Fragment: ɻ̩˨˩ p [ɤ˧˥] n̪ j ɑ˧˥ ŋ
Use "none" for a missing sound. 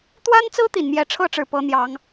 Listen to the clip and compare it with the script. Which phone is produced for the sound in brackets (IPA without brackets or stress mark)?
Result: ɤ˧˥